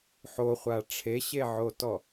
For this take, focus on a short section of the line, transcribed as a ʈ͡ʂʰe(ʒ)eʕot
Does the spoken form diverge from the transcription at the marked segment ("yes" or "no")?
yes